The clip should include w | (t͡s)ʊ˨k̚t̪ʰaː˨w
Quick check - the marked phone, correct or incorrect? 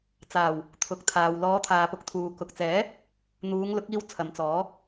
incorrect